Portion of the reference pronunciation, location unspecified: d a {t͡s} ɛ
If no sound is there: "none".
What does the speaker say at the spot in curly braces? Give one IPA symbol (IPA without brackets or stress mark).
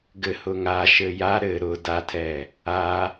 tʰ